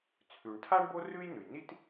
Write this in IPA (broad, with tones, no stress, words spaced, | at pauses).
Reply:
t͡sʰʉ˩ɳtʰa˥ɳ bo˥ rʉ˥jnʉ˩jni˥t